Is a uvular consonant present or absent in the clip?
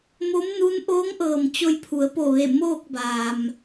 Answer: absent